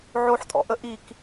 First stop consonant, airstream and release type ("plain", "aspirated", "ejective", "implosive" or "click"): ejective